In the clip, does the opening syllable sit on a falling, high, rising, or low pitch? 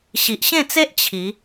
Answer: low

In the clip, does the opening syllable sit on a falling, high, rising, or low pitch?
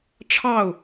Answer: falling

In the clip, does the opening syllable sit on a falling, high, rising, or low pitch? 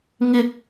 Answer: high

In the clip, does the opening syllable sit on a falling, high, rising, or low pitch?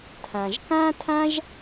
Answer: low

